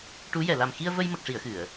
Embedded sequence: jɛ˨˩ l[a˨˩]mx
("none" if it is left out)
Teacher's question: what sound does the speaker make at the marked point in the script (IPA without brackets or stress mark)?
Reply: a˨˩